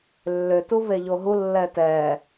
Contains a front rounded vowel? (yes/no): yes